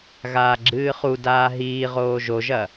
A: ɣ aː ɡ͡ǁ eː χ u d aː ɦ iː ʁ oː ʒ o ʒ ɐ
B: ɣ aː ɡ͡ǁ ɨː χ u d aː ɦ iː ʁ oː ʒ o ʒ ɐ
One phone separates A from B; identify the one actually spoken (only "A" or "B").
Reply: B